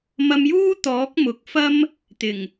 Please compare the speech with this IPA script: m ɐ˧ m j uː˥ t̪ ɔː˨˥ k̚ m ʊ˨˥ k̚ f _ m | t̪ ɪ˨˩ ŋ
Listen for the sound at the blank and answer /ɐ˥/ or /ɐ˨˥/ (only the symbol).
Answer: ɐ˥